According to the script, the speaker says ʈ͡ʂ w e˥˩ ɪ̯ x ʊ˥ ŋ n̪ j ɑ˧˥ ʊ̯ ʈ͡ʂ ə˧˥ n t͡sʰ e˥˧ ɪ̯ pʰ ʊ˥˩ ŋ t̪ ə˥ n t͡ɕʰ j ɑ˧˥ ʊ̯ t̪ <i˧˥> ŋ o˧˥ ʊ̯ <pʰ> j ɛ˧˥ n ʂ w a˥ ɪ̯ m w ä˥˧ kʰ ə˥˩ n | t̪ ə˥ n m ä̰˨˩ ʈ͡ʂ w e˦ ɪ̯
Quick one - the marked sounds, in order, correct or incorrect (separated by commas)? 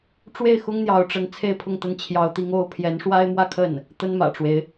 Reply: correct, correct